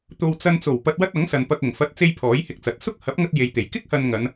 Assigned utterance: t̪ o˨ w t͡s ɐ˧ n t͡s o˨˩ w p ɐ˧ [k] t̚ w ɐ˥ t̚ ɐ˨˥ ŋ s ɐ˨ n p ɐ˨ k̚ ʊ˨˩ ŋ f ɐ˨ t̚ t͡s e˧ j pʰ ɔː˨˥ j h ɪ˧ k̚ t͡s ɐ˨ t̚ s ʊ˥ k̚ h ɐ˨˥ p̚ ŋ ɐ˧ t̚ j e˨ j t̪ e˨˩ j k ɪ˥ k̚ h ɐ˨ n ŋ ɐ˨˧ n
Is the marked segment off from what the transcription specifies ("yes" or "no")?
yes